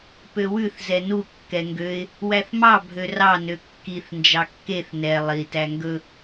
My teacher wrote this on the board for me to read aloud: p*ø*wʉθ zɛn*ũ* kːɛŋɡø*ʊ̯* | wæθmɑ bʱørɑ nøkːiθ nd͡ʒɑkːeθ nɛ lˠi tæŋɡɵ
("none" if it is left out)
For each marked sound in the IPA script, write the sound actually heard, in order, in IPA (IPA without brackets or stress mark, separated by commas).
ø, u, ɪ̯